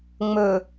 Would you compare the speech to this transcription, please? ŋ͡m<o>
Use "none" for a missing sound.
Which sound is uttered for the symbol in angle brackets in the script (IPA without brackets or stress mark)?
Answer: ɵ